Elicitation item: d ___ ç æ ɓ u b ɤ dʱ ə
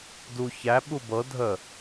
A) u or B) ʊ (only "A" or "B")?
A